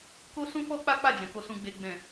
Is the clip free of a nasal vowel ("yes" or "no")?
no